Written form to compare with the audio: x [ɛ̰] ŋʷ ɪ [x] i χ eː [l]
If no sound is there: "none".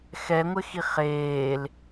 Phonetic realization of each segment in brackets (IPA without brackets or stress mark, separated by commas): ɛ, x, l